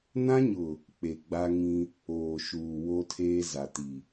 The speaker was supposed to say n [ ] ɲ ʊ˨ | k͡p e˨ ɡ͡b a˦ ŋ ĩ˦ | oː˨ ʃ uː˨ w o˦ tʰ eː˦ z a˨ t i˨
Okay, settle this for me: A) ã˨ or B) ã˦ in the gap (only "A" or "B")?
B